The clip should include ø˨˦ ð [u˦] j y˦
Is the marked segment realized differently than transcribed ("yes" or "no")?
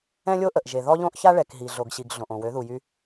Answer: yes